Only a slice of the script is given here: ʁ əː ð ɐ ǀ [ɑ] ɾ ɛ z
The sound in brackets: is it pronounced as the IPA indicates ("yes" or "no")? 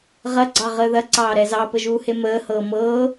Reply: no